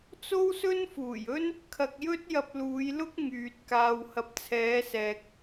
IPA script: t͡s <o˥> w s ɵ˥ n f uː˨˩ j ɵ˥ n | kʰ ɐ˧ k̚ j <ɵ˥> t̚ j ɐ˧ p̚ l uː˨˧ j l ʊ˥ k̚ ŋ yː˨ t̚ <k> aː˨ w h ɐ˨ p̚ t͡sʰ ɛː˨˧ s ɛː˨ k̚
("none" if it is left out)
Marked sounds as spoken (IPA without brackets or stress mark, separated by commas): o˥, ɵ˥, k